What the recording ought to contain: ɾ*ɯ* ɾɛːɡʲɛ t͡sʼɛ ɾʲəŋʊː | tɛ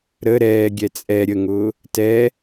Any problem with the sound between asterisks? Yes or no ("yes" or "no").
yes